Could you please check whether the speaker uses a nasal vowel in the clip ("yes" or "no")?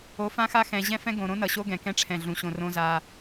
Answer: yes